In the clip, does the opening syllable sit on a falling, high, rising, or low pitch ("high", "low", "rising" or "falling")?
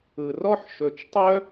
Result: low